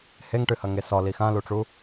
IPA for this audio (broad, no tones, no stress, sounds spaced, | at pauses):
h e ŋ ʈ ɨ h ɐ ŋ e s ɔ l i x ã l u ʈ͡ʂ u